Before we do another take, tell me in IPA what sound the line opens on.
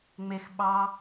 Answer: ŋ͡m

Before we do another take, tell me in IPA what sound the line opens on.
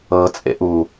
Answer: ɤ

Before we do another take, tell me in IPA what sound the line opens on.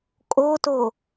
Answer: kʼ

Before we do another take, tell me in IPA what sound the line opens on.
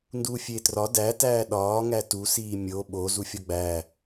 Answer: n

